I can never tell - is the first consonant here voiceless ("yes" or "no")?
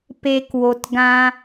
yes